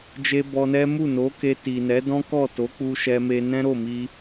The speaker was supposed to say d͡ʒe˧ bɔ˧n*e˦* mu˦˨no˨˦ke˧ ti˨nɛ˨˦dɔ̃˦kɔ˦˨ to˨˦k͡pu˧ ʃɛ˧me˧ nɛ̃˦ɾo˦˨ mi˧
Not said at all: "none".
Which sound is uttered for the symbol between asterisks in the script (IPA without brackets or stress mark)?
ɛ˦